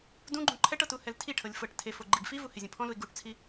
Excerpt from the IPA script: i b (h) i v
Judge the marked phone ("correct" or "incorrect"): incorrect